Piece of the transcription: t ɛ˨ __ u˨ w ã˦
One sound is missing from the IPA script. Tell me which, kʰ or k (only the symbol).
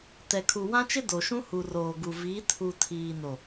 kʰ